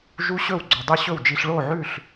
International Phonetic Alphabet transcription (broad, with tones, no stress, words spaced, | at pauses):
ʒu˦˥ɕɵ˥˩w ɡ͡ǀɵ˨˩dˤʉ˥˩ɕɵ˥˩wd͡ʒi˧ɬ ɭo˥˩ʕʉ˥˩ɬ